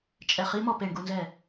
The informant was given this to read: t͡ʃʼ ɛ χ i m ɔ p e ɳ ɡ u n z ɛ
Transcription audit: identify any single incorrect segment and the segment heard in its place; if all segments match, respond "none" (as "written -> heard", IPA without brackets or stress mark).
none